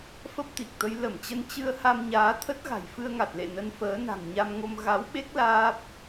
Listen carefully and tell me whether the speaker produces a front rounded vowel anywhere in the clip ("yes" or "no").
no